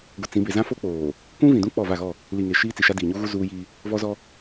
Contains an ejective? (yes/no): no